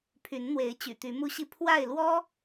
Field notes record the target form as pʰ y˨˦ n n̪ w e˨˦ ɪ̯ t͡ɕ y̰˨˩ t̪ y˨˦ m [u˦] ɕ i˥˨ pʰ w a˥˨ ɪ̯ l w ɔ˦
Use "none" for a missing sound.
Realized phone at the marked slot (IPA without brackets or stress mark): u˦